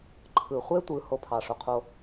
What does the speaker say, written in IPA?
ǃʰ ɯ˨ χʷ e˦ tʷ ɯ˨ h o˦ pʰ ɑ˨ ʂ o˨ qʰ o˦

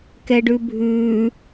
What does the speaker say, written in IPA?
k ɛ ɖ ʉ bʱ ʉ

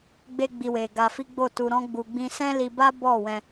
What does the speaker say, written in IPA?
ɡ͡b e˦ ɡ͡b i˧ w e˨ ɡ a˧ f i˦ ɡ͡b o˦˨ t u˧ ɾ ɔ̃˦ ɡ͡b u˧ ɡ͡b ĩ˧ s ɛ̃˦ l i˧ b a˦ b ɔ˦˨ w ɛ̃˧

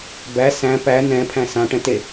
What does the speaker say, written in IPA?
b æ s æ̃ p æ n ɛ̃ pʰ æ̃ s ã ʈ ɛ̃ t e

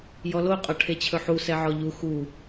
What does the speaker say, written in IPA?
j ɔ l o qʼ ɒ ʈʰ e t͡ɕʰ ɵ ħ u s ɛ ʕ ɔ ʎ u x u

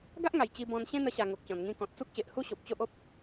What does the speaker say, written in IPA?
ɡ a˦ ʔ ŋ a˨˩ j t͡ɕ i˧ b ɔ̃˧ n ɕ ẽ˦ n̪ ə˧ ɕ a˨˩ ŋ o˨ k̚ t͡ɕ ɔ̃˨˩ n ŋ ĩ˧ k ɔ̃˨ t̚ t͡s u˦ k̚ ɕ e˨ ʔ h u˦ ɕ o˨ p̚ t͡ɕ o˦ ʔ o˦ p̚

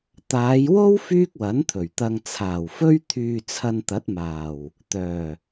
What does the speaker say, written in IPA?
t̪ aː˨˧ j w o˥ w f yː˥ k̚ w ɐ˨˥ n t̪ʰ ɵ˨˩ ɥ t̪ ɐ˧ ŋ t͡sʰ aː˨˩ w f ɵ˥ ɥ t̪ʰ yː˧ t͡sʰ ɐ˧ n t̪ ɐ˨˥ t̚ m aː˨˩ w | t̪ œː˨˩

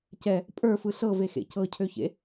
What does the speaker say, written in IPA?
c ɛ | pʼ ə˞ f ɯ ɬ ɤ v e x ḛ c ɤ cʰ ø ç ḛ

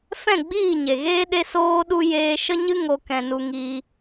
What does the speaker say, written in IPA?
f ɛ̃˦˨ ɡ͡b iː˦˨ ɲ e˨ ɣ eː˦ ɗ e˦ s oː˦ ɗ u˦ j eː˧ ʃ ə˦ ɲ ɨ˦ ŋ o˧ k ɛ̃˧ n u˧ ŋ iː˧

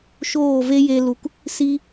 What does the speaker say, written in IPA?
ʃ oː˦˨ v e˦ j e˧ l u˨ k | s i˧

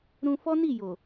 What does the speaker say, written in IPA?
ɾ ũ˧ f ɔ˦ n i˦˨ j o˨

